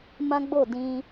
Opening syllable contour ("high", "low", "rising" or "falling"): high